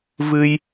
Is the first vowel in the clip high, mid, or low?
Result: high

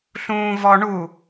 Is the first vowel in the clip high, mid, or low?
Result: high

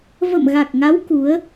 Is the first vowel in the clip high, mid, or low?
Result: mid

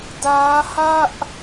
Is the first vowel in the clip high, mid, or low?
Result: low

